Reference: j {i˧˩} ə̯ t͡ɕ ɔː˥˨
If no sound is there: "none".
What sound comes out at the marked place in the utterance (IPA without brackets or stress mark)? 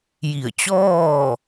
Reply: i˧˩